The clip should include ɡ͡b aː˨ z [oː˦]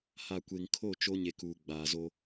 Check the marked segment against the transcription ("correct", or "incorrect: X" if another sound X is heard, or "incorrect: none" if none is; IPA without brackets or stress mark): incorrect: o˦